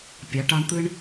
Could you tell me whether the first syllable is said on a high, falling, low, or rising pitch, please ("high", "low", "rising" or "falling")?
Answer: rising